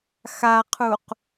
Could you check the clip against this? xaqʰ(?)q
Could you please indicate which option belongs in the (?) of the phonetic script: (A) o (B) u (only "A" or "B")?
B